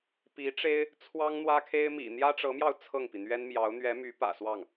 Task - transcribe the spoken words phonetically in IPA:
pi˧˥ʈ͡ʂe˥ɪ̯ | t͡sʰwɑ˥ŋ n̪wä˥kʰe˥ɪ̯ mḭ˨˩n̪jä˥ʈ͡ʂɤ˧˥mjɑ˧ʊ̯ t͡sʰɤ˥˩ŋpi˩ n̪ɥɛ˥nmjɑ˧˥ʊ̯ n̪ɥɛ˧˥my˧˥ pä̰˨˩swɑ˥˩ŋ

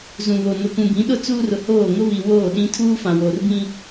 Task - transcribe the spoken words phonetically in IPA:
zũ˨βo˨ nʊ˨kũ˨ bĩ˨˦ɗʊ˦ t͡suː˦rʊ˨hoː˦˨ ŋʊ˦βi˨ woː˦˨ɗĩ˦ tʰuː˦fã˨ woː˨rbĩ˦

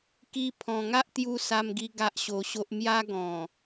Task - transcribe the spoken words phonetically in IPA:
ki˧ pʰɔ̃˨˩ŋa˦ʔt̪ju˧ sa˧mɡi˧ ɡa˦ʔɕo˧ɕo˦ʔ mja˦ɡɔ̃˨˩

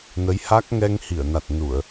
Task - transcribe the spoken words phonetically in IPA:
nə˨˦jha˦˥k̚ ŋɛ˧ŋhi˧˩ə̯ na˨˩t̚nu˧˩˨ə̯

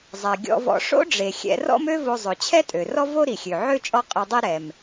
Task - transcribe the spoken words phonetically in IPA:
zˤɛ˩ɡʲɔ̰˧vɔ̰˧ ʂo̰˥ɖ͡ʐe˩ xʲɛ̰˧ rɔ̰˥mø˥vo˧ zˤɵ˩ t͡ɕʰɛ˥tʼø˩rɔ˥vo˥ ɾi˩xʲø˩ʕø˥ t͡ʃʼɔ˥qʼɵ˧dˤi˥ ɾɛ˩m

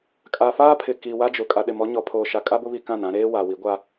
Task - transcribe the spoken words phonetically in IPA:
kʼa˨faː˦pʰɪ˨ ki˨wa˦d͡ʒʊ˨ kʼa˨ɗɪ˨mɔ˦ɲɔ˨ pʰoː˨ʃa˨kʼa˦bʊ˦ βi˦kã˦˨nã˦ ɾeː˦ wa˨wi˨˦ɡʷa˦

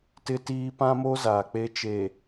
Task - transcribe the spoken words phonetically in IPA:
tɪ˦tiː˦ pã˦mo˦ zaː˨k͡pe˦ t͡ʃe˨

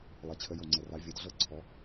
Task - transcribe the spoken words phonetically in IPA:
lˠe˨˩t͡ɕʰə˨˦ jo˨˩ŋ͡ǀɛ˨˩ ra˨˦vʲɤ˨˦dɮɤ˥˨ ǀʰɔ˨˦

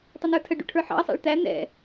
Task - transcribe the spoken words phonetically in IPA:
tˤənə˞tʰəɖṵ ʈʰə˞ħɑ̰ɐ̯sˤæ̰ɭ t̪æ n̪ɛ̰

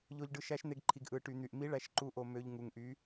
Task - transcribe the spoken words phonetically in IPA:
ʎo˧ʎɖɯ˧ ʃæ˧˥ʃn̪e˧ɡǃʰi˧ɡ ʔɯ˧ʈy˧n̪y˧ʔ mi˧˥ ɭæ˧ʃǃu˧˥ʔo˧ mø˧ʎ ŋu˧ŋʔy˧˥

